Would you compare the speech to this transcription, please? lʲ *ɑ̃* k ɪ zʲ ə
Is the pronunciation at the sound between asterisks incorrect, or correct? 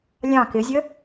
correct